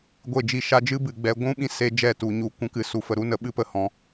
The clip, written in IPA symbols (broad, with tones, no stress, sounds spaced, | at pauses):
ɡʷ e˦˨ d͡ʒ i˦˨ ʃ a˦ d͡ʒ ɨ˦ b ɨ˨ ɡ͡b ɛ˧ ɡʷ ũ˦ ɓ ĩ˦ s e˧ d͡ʒ ɛ˦˨ t u˨ ɲ u˨ kʷ ũ˦ k ɨ˧ s u˨ f ə˨ ɾ u˦ n ə˨˦ ɓ ɨ˦ p ə˨˦ h ɔ̃˨˦